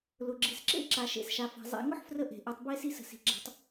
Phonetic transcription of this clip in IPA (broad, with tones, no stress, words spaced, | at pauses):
lʊ˩ɡ͡ǁi˩sǁḛ˥ ǁa˩˧ʃḛ˩˧sʃa˩˧fa̤˩˧ zˤḛ˩˧ŋʊ˥ħfrə˧ ʔe̤˩ʔɯ˩˧tˤbe˧˥ si˧sə̤˩si̤˩ ɡ͡ǁa̤˧tˤ